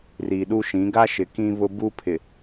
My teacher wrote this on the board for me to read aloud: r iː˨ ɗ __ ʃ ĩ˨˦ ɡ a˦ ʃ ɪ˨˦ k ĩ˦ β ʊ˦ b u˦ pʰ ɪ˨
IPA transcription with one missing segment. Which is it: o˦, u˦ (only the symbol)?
u˦